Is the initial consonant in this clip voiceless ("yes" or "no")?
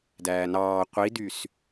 no